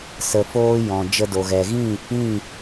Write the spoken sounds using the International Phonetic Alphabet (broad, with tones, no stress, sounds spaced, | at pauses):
s ə˧ f oː˦ j ɔ̃˨ d͡ʒ ə˧ d o˨ ɣ ɛ˨ ɣ ĩ˦˨ | ĩ˦˨